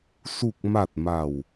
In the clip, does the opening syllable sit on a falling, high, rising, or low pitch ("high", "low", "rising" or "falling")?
low